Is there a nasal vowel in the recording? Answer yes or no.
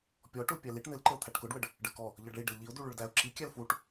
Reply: no